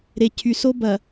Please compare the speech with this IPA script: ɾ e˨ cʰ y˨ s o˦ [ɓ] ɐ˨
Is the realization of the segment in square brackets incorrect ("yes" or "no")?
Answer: yes